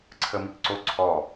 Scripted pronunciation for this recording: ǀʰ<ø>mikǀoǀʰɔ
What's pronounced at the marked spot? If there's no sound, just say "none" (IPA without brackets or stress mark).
ə